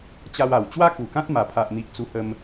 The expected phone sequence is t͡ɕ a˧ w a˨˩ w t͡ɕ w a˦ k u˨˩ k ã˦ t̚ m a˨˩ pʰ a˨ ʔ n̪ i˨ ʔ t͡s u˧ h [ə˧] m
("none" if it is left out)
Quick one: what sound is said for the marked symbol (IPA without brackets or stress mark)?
ə˧